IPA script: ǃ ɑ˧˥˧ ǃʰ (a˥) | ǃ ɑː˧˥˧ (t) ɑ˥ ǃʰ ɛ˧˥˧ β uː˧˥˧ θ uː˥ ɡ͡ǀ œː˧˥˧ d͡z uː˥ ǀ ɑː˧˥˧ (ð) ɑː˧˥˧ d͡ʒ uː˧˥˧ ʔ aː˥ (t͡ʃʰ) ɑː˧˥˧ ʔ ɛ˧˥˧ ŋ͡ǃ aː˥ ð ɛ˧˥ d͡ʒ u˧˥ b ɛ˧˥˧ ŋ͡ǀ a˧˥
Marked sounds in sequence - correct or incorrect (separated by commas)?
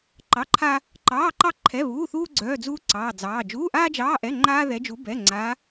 correct, incorrect, incorrect, incorrect